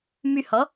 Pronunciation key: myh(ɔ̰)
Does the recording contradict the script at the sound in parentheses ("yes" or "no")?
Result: yes